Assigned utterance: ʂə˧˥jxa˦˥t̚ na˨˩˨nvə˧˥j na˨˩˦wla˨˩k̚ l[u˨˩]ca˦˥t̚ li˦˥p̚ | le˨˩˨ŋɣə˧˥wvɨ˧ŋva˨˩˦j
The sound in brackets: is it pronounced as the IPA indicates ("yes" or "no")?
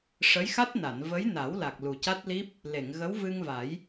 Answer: yes